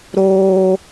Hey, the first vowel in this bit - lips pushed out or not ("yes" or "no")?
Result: yes